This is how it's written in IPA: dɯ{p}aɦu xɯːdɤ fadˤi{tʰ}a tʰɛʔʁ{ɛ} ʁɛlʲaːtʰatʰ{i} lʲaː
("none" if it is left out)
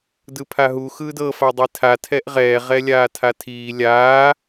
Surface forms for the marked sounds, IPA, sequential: pʰ, tʰ, ɛː, iː

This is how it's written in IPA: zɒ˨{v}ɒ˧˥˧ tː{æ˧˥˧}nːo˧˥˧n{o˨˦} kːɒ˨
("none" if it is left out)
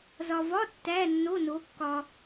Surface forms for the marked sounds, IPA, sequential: v, æ˧˥˧, o˨˦

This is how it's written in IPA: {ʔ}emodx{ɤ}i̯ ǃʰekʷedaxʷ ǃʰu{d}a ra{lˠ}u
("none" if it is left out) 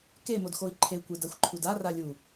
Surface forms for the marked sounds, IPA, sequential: k, o, d, lʲ

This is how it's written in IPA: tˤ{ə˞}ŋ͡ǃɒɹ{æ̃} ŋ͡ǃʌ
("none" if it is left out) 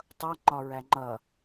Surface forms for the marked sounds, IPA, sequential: ʌ, æ

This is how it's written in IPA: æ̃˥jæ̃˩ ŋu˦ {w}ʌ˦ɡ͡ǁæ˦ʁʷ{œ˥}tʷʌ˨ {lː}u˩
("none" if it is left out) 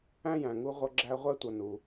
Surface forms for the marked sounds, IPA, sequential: ʁʷ, æ˥, n

